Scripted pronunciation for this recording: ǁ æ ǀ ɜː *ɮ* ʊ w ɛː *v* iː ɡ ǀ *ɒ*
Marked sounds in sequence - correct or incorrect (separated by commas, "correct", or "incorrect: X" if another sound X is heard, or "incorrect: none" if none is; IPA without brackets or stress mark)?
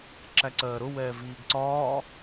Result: incorrect: ɾ, correct, incorrect: ɒː